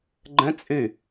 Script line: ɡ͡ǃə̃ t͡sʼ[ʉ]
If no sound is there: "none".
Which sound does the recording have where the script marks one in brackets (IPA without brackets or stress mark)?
ʉ